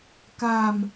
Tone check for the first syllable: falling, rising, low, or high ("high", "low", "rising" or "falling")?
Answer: low